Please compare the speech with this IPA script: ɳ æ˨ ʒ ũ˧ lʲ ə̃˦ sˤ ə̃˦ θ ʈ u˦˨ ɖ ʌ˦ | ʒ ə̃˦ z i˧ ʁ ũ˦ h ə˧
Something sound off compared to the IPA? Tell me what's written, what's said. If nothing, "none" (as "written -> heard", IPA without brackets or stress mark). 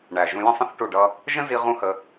none